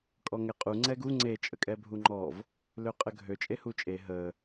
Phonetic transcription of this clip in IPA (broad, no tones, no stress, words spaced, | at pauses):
kʼɔŋɛqʼu ŋ͡ǀɛɡu ŋ͡ǀe t͡ʃʼəkʼɛbʱuŋ͡ǃɔv | løqʼəɡʱø t͡ʃʼehut͡ʃʼe ɦə